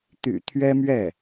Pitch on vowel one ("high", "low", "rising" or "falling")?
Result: low